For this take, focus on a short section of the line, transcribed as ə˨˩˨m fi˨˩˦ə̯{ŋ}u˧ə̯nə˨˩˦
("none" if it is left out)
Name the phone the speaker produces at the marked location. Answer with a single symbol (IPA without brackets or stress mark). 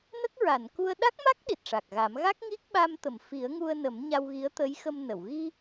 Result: ŋ